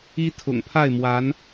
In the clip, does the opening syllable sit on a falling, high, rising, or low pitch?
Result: high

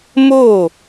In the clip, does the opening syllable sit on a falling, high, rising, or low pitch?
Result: falling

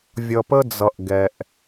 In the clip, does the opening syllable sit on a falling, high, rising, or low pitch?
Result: low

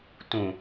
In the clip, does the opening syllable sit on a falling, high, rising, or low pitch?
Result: low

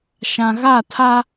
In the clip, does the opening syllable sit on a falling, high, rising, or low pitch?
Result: low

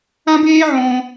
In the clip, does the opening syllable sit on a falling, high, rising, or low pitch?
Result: high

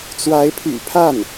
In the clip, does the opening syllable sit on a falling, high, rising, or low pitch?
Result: rising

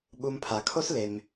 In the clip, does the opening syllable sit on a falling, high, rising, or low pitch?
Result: low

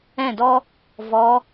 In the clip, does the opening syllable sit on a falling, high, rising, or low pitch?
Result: falling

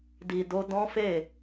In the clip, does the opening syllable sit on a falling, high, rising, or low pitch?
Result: low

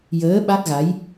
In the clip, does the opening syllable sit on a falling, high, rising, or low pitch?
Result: rising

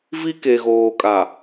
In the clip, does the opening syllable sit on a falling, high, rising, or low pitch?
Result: high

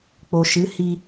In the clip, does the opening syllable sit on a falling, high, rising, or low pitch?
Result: low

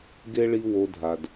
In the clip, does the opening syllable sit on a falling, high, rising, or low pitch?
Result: high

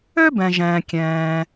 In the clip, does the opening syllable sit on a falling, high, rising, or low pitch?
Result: high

